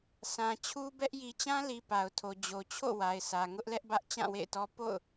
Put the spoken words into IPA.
s ã˨ t͡ɕʰ u˦ b ɛ˦ ʔ j i˨ t͡ɕ ã˦ l i˨ p a˨ ʊ̯ tʰ o˨ d͡ʑ o˨ t͡ɕʰ o̰˦˨ w a˨ ɪ̯ s ä˨ ŋ ʊ˦ ʔ l ɛ˦ ʔ b ä˦ ʔ t͡ɕ ã˦˨ w ḛ˦˨ ɪ̯ t ɔ˦ p o̰˦˨ ʊ̯

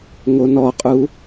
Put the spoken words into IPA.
ŋ o n ɔ qʼ u

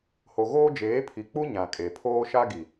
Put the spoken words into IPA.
h o˨ ɣ oː˦ d͡ʒ eː˨˦ pʰ i˨ k͡p u˦ ɲ ã˨ kʼ e˨ pʰ oː˦ ʃ a˦ ɡ i˨

